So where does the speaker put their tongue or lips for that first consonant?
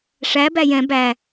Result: retroflex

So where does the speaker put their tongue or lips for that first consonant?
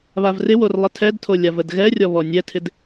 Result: lips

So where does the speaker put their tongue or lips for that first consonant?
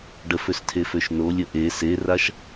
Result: retroflex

